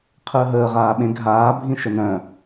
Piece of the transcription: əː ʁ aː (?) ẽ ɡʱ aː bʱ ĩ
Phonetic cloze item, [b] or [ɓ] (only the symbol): ɓ